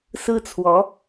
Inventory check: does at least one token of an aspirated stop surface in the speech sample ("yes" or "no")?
yes